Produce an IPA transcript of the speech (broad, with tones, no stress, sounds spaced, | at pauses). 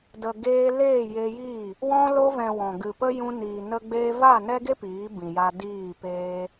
d ə˨ ɡ eː˧ l eː˦˨ j e˧ j iː˦˨ | w ɔ̃˧ l o˧ v ɛ̃˨ w ɔ̃˨ ɡ ɨ˨ p ə˦ j ũ˧ n iː˨ n ə˧ ɡ͡b eː˧ v a˦˨ n ɛ˦ ɡ e˦ p iː˨˦ b ĩ˨ j a˧ d iː˦˨ p eː˦